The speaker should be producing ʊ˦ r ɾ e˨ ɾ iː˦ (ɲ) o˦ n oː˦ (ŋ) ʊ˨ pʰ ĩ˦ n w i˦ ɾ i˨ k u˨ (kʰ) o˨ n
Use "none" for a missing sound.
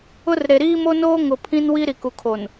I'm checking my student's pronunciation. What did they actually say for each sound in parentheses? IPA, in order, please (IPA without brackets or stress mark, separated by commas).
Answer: m, ŋ, kʰ